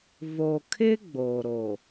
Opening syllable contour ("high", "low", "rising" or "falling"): low